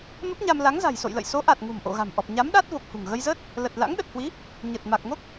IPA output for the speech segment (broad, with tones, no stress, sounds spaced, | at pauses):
m ə˦˥ p̚ ɲ a˧ m l a˨˦ ŋ z a̤˨˩ j s o̰˧˨ j l ə̰˧˨ j s o˨˦ ʔ a˨˩ t̚ ŋ ṳ˨˩ m ʔ o̰˧˨ ɣ a̤˨˩ m ʔ ɔ˨˩ p̚ ɲ a˨˦ m ɗ a˦˥ t̚ v o˨˩ k̚ h ṳ˨˩ ŋ ɣ ə˧ j z əː˦˥ t̚ | l ə˨˩ t̚ l a̰˧˥ ŋ ɗ ə˨˩ t̚ h w i˨˦ | ɲ ə˨˩ t̚ m a˨˩ k̚ ŋ o˦˥ k̚